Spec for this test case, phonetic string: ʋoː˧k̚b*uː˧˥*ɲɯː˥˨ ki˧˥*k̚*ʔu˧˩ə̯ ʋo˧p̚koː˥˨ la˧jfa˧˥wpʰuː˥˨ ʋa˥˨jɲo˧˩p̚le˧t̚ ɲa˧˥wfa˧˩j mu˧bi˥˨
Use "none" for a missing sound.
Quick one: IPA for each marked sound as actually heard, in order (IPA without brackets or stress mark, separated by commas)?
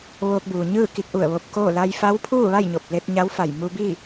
uː˩, k̚